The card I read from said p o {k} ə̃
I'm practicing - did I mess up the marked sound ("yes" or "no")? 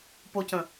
yes